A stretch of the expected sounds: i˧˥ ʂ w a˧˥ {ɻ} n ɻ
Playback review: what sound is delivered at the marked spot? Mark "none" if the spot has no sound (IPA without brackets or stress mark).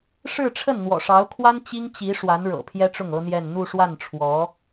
none